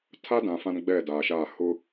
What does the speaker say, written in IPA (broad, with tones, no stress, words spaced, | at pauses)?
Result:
tʰa˦dã˨ fã˦nɡ͡bɛ˦˨daː˨ʃa˦˨ hʊ˦